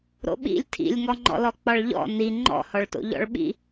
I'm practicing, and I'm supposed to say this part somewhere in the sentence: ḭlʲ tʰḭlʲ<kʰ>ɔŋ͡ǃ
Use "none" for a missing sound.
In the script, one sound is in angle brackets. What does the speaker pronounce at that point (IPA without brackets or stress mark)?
ŋ